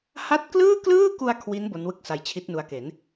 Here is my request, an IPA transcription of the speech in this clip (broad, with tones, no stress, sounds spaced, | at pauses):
h a˦˥ t̚ k l ɯː˥˩ k l ɯː˥˩ k u˧ a̯ kʰ w i˦˥ n b o˦˥ n w ɯ˥˩ k̚ s a˧ j t͡ɕʰ i˦˥ t̚ n u˦˥ a̯ k e˩˦ n